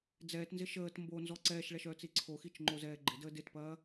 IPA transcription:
d͡zɛːtnzɪ ʃəːt mbonzɔ ǀɛːʃɭɛʃœːt͡si ǀʰoxit͡ʃŋ͡ǃozɛː ɡ͡ǃɪdə dɪtpɐː

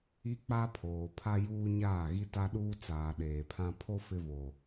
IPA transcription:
i˦k͡pa˦pʰoː˨ pʰa˦ juː˦ ɲaː˦˨ɣi˦ta˦ɗuː˦ t͡saː˨ ɗeː˨pʰã˦ pʰo˦ fɪ˦vo˨

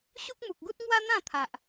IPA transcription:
ɕu˦k̚mu˨k̚ɡu˦t̚ ŋwa˦n̪ã˥˧t̪ʰa˨ʔ

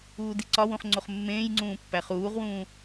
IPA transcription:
uːdiǀɒwũχ ŋ͡ǀoχmːẽːjŋ͡ǀũː pːæχuːʁwũː

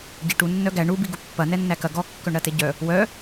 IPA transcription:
ɟeʈu nːœɡæ ɳu biɡupːɐ nɛnːækɐ ɡɔ kːœɳɾɐteɟœ | wœ

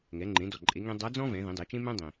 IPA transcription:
ŋɛ˩˧ŋ͡ǃẽ˩˧dɔ˩ ǃʼe˩˧ŋẽ˧ dˤa˧˥d͡zɔ̃˥vɛ̃˩˧ ðĩ˩˧dˤe˩˧t͡ʃẽ˥mɛ̃˥ dˤĩ˩

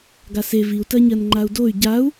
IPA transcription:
ɡase viu̯tɜɲɜn ŋ͡ǃau̯doy̯ ɟau̯

